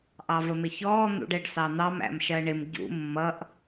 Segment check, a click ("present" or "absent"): absent